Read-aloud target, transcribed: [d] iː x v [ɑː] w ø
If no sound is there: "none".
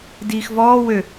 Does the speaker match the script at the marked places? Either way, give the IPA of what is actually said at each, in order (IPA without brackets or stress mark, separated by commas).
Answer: d, ɔː